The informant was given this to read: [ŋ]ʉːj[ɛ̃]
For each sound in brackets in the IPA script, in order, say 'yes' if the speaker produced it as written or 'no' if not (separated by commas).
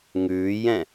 yes, yes